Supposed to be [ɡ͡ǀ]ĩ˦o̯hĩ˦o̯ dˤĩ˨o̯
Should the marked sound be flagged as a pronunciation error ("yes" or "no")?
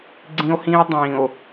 no